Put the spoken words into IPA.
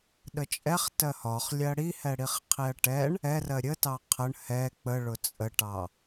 ɗ ə t͡ʃʼ ɛ χ t ɜ h ɒ χ lʲ ɜ ɽ i h ɛ ɽ i χ qʰ i ɐ̯ ʈ ɛ ɳ | ɛ r ɜ ɾʲ ə t ɑ qʰ ə ɳ h ɛ k͡p ə ɭ ʊ t͡sʼ ə ʈ ɑ

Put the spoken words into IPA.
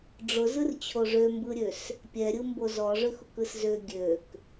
ɖ͡ʐ ʊ z ɯ r t͡ɕʰ o ʐ ø m b ɯ ɾʲ ø s | pʲ ɛ ɾʲ ɯ m b o z ɔ ʐ ø x ʊ k ɯ s z ø ɡʲ ø k

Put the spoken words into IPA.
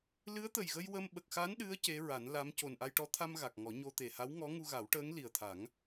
l ɨ˧˥ ə̯ t̪ ə˨˩ j ɣ ə˧ j w ə˧ m ɓ ə˨˩ k̚ x a˧˥ n ɗ ɨ˧˥ ə̯ c e˧˥ ɹ a˨˩˦ n l a˧˥ m c o˨˩ n ʔ a˧ j ʈ ɔ˧˥ t̪ʰ a˧ m ɣ a˨˩ k̚ ŋ ɔ˨˩˦ ɲ o˧ t̪ e˨˩ h a˧˥ w ŋ ɔ˧˥ ŋ u˧ ɣ a˨˩˦ w ʈ əː˧˥ ŋ l i˨˩ ə̯ t̪ʰ a˨˩˦ ŋ

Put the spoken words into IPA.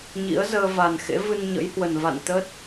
ɲ ḭ˧˥ ə̯ z əː˧ v a˨˩ n x ḛ˧˥ v ɨ˧ n ɲ ə̰˧˥ j h w ə˨˩ n v a̰˧˨ n t̪ ə˦˥ t̚

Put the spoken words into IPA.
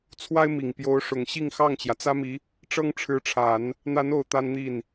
t͡sʰ w a˥ ɪ̯ m i˨˩ ŋ p j o˧˥ ʊ̯ ʂ ʊ˨˩ ŋ ɕ i˥˧ ŋ x ɑ˥˩ ŋ t͡ɕ j ä˩ t͡s ä˥ m i˧˥ | ʈ͡ʂ ɤ˥ ŋ ʈ͡ʂʰ ɻ̩˧˥ ʈ͡ʂʰ a˨˩˦ n | n̪ a˧˥ n o˨˩ ʊ̯ t̪ a˥ n n̪ i˥˩ n

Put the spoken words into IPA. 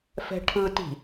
f ɛ̤ ʈʰ ɯ t i̤

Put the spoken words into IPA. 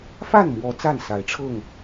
f a˥˨ n m w ɔ˨˦ t͡s a˥˨ n s a˨˦ ɪ̯ ʈ͡ʂʰ ɤ˥˨ ŋ

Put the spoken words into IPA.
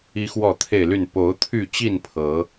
i˦ x w ɔ˥˨ t̪ʰ e˥˨ ɪ̯ l y˥˨ n p o˨˦ ʊ̯ t̪ʰ y˥˨ t͡ɕ i˥˨ n pʰ ɤ˨˦

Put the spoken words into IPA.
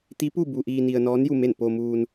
t̪ i˧˥ p u˥˨ b u˧ ʔ iː˧ n i˧ ə̯ n ɔː˧˥ n j u˥˨ m e˥˨ n p oː˧ m uː˧ n

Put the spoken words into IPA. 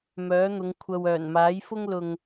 m œː˨˥ n̪ ʊ˨˧ ŋ kʷʰ ɐ˧ w œː˨˩ n m aː˨˥ j f ʊ˥ ŋ l ʊ˧ ŋ

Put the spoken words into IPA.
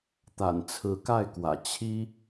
t̪ a̰˨˩ n t͡sʰ ɹ̩˨˦ k a˥˨ ɪ̯ k w ä̰˨˩ t͡ɕʰ i˦

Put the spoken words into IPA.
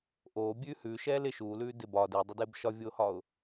ʔ oː bʲ ʉː h ʉː ʃ ɛː l ɪ ʃ uː l ʉː d ɪ b ɒː d ɪː dˤ ɪ d ɪː b ʃ ɒ vʲ oː h ɒː ʊ̯

